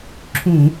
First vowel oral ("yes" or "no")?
no